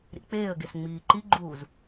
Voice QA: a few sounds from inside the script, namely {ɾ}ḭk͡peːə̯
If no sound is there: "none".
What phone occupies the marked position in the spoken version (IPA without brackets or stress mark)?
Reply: ɾ